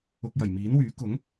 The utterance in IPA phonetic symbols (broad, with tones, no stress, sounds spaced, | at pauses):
ʊ˧ k̚ j ɐ˨˩ j m iː˨˥ n w yː˨˥ k ʊ˨˥ ŋ